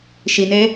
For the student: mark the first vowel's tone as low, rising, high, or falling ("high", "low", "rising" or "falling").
low